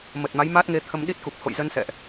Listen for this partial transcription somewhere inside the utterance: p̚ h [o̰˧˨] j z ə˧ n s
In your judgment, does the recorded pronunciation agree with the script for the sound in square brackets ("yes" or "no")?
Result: yes